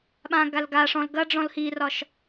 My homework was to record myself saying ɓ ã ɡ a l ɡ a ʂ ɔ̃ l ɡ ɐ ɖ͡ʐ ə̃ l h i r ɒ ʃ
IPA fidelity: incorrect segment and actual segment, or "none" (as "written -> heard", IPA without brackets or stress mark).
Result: ə̃ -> ɔ̃